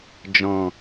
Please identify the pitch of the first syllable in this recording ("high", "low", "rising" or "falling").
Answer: low